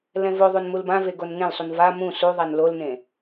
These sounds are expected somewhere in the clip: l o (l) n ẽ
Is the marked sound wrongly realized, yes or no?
no